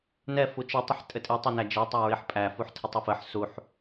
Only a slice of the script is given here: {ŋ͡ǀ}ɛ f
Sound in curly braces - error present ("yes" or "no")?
yes